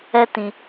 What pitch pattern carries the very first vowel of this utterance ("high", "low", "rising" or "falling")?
high